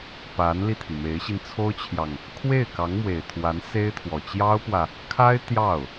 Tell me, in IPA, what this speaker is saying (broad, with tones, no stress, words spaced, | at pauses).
pa˧˥nli˧t̪ʰi˩ me˧˥ɪ̯ɕi˧n t͡sʰo˥ʊ̯t͡ɕʰjɑ˨ŋ | kʰwe˥˩ɪ̯kɑ˧˥ŋmwe˨˩ɪ̯t̪ʰwa˧˥n se˥ɪ̯t̪ʰwɔ˨˩ t͡ɕjɑ˥ʊ̯pwä˨ | kʰa˥ɪ̯ t̪jɑ˥˩ʊ̯